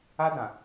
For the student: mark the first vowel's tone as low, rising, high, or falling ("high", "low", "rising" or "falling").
high